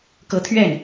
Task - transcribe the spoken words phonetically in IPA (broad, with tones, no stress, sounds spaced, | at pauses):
k ɤ˧˥ t̪ʰ ɥ ɛ˥˩ n